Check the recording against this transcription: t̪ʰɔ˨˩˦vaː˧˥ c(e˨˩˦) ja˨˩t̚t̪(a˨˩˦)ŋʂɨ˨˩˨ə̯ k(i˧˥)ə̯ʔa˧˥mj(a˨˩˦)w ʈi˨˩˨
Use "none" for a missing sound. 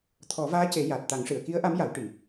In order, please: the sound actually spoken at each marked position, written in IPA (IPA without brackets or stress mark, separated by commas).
e˨˩˦, a˨˩˦, i˧˥, a˨˩˦